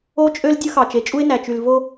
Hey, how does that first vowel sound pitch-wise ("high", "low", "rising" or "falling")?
high